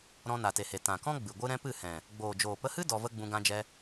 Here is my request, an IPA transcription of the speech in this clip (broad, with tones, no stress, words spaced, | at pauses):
ɾɔ̃˧na˨te˨he˨ tã˨kɔ̃˦ ɡ͡bɨ˨ɡʷɨ˦ ɾɛ̃˦pɨ˦˨hɛ̃˨ | ɡ͡boː˨d͡ʒoː˨pə˧hɨ˦ dɔ˧və˦ɡ͡bũ˧ ɡã˧d͡ʒɛ˧